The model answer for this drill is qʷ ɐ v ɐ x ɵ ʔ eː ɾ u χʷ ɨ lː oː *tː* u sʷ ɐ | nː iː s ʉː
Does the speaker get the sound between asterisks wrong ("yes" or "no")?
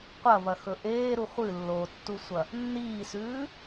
no